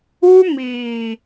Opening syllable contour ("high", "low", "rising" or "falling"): high